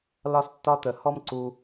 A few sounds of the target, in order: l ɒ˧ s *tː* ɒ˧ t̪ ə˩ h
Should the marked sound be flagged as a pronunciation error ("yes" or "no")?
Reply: no